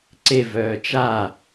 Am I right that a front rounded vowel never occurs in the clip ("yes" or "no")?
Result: no